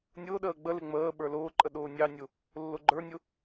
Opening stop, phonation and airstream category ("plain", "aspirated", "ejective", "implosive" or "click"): implosive